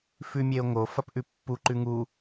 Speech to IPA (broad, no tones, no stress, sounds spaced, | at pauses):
f ʉ mʲ e o̯ ŋ o f ɐ p ʔ ʉ pː u ǃ ʉ ŋ u